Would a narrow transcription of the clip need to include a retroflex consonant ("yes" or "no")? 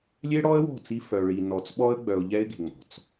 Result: yes